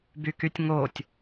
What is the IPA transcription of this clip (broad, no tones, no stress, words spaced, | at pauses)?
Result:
bykytʲŋotʲ